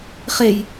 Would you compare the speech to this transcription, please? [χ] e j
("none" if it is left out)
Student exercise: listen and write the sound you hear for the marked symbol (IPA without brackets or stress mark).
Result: χ